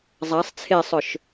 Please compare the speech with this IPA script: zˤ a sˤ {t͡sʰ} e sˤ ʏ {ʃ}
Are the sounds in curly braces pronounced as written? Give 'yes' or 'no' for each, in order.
yes, yes

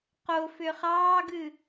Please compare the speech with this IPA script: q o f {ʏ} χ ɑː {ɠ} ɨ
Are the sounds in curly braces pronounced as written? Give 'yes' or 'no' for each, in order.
yes, no

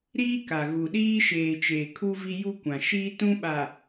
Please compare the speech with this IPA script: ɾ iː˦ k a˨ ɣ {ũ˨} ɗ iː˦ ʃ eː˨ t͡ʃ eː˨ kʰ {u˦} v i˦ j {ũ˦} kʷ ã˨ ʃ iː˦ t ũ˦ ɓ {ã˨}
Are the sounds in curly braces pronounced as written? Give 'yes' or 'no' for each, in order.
no, yes, no, no

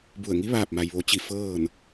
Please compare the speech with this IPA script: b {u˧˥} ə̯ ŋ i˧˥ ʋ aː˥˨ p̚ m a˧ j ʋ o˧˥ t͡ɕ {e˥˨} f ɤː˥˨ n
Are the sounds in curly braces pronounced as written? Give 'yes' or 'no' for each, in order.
no, no

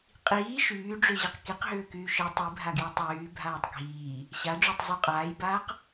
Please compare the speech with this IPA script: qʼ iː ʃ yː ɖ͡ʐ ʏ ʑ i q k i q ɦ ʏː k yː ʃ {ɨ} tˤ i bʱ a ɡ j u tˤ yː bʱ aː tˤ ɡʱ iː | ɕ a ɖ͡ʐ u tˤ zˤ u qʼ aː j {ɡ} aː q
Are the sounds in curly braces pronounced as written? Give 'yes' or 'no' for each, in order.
yes, no

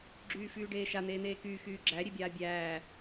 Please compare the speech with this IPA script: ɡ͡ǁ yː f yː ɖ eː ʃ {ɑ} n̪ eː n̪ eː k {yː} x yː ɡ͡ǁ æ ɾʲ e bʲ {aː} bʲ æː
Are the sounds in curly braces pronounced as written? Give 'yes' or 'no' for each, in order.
no, yes, yes

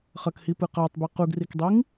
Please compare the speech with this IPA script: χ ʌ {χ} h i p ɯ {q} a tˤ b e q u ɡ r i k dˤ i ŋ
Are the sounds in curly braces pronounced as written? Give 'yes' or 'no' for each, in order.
no, yes

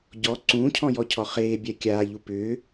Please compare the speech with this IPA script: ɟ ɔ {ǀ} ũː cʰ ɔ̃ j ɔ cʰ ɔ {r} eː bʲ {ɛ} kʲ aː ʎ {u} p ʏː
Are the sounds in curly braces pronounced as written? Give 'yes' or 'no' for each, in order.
yes, no, yes, yes

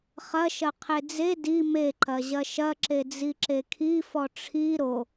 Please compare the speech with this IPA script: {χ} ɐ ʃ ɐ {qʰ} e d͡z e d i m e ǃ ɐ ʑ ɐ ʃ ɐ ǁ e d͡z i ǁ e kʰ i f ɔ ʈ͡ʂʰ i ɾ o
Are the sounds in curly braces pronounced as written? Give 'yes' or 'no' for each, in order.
yes, yes

